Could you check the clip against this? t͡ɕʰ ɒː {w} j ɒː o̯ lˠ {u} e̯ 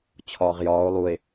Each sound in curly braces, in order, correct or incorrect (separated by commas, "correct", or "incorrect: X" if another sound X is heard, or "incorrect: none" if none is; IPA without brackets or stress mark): incorrect: ʁ, correct